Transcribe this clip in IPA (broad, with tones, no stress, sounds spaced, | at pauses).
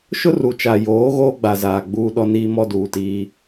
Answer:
ʃ ʊ˦ r u˨ t͡ʃ a˨ j oː˨˦ ɣ oː˦ ɡ͡b a˨ z aː˨ ɡ͡b uː˦ ɗ ɔ˦ n iː˦ m ɔ˦ d uː˨ t iː˦